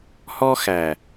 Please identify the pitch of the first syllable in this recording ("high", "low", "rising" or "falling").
high